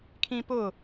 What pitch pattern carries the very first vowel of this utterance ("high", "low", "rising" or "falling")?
high